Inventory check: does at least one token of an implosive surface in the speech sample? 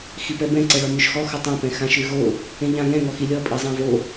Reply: no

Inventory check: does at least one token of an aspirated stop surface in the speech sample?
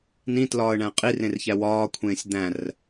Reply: yes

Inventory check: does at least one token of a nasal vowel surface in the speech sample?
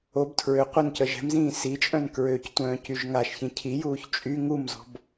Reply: yes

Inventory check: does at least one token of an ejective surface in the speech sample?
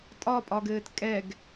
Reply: yes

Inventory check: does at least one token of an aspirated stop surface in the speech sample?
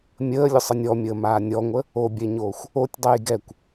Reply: no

